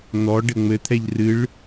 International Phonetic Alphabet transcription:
n̪ ɔ ɖ ɘ ŋ͡m ɘ t̪ʰ ɛ ʎ r ɨ ɭ

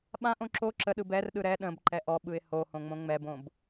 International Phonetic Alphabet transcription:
ɓ ã ʔ õ ǁ o ǁ ə ɗ ɯ b ɛ r ɗ ɯ ɾ ɛ ɗ ə̃ b ǃ ɛ ʔ ɔ ɓ ɯ ɪ̯ h o h õ ŋ͡m õ ŋ͡m ɛ b õ b

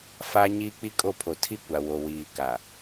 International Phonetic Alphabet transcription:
f a˦ ɲ iː˦ k͡p i˦ kʼ o˦˨ pʰ o˨ tʰ i˦ kʷ a˨ w o˨ w iː˨ k a˨

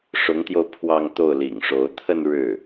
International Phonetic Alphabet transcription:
ʂ ʊ˧˥ ŋ t̪ j o˧ ʊ̯ pʰ w ɑ˥˧ ŋ t̪ o˥˩ ʊ̯ l ḭ˨˩ ŋ ʂ o˧˥ ʊ̯ t̪ʰ ə˥˧ n ɻ ɻ̩˥˩

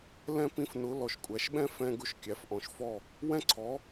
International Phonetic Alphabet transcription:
l ɛ̃˧ p ĩ˨˦ f n ʊ˨˦ l ɔ˨ ʃ kʷʼ æ˨ ʃ ɓ ɛ̃˦ f ɛ̃˧ ɡ ʊ˧ ʃ kʲ æ˨ f ʔ ɔ̃˨ ʃ f ɔ˦˨ | w ɛ̃˦ ǀʰ ɔ˨˦

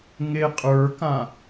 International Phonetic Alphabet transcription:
ŋ e qʼ ə˞ k ã

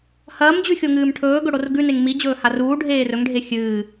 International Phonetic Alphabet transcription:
h ɐː m d͡ʑ ʉ xʲ o ŋ ɨː m ʈʰ ɵː ɡ ɵ ɽ o r ɡ ʉ n e ŋ m i d͡ʑ ɵː h a r uː ɖʱ eː r ɵ ŋ ɖʱ e xʲ ɨː

